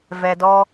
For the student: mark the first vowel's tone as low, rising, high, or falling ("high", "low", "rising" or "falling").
low